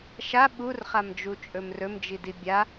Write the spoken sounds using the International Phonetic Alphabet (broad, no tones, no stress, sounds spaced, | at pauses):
ʃ a ɓ u r χ a m d͡ʒ u t͡ʃʼ ɵ m r ɵ m d͡ʒ i d i bʲ a